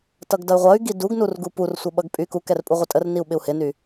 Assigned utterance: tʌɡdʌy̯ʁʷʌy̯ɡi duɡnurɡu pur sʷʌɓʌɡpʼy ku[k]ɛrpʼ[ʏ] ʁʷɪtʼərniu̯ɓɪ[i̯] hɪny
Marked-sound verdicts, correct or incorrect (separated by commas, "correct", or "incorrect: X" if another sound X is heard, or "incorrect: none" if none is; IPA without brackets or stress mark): correct, incorrect: u, incorrect: u̯